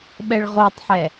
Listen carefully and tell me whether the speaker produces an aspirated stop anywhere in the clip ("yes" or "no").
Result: no